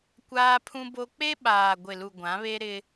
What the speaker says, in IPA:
kʷ aː˦ pʰ ũ˦ b o˦ k͡p e˦ ɓ aː˨ ɡʷ ɪ˨ l u˨ ɡʷ ã˨˦ β e˦ ɾ ɪ˦

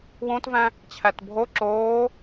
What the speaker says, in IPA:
w õ t v æ̃ | t͡ɕʰ æ t bʱ o ǁ oː

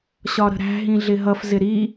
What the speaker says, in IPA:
ɕ ɒ ɾ ə̤ ɾ æ̤ ɦ ĩ ɮ ɪ ɦ ʌ f z ɪ ɾ i

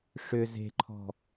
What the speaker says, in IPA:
ʂ ʏ z e̤ ǃʰ ɔ̤

